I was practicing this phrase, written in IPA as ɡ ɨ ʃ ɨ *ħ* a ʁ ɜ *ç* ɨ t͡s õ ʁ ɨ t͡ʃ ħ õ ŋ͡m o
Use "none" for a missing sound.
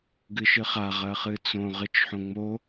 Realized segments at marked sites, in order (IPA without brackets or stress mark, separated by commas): χ, χ